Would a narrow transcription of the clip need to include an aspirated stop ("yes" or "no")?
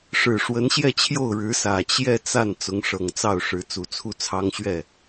yes